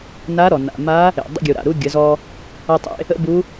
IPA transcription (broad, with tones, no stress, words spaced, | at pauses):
na˧˥ɾɔ˩ na̰˩ma˧˥ | ḛ˩dˤə̰˧ɡʲu˩ ɾa̰˩ɾu˧ ɡʲə˩˧zɔ˧ | ʌ˧tˤḛ˧ | ə̰˥bu˧˥